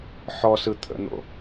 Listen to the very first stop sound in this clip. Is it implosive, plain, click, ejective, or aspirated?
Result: aspirated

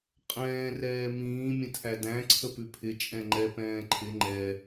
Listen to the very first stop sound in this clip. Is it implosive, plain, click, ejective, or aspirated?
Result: ejective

